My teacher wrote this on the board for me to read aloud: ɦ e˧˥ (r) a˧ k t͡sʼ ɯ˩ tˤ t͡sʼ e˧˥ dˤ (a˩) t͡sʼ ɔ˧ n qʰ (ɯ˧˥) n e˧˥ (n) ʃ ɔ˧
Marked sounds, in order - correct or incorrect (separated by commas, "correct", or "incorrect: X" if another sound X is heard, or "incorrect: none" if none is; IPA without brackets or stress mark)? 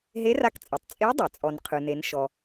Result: correct, correct, incorrect: ɯ˧, correct